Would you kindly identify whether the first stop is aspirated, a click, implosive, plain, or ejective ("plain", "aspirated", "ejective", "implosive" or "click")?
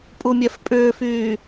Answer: ejective